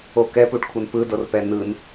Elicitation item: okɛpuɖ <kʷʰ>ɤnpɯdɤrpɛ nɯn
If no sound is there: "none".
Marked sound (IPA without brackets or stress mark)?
kʷʰ